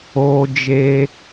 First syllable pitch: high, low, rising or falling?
high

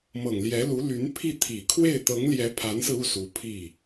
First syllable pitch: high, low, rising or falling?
low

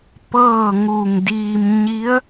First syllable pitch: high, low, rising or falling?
falling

